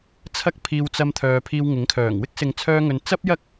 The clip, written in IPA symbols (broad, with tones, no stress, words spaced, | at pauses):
t͡sʰɐ˥k̚pʰiː˧wt͡sɐ˧mt̪ʰœː˨ pʰiː˧wŋɪ˨˥ŋkʰœː˨˩ŋ wɪ˥k̚sɪ˨ŋt͡sʰœː˧ŋɵ˨n t͡sɐ˥p̚jɐ˥k̚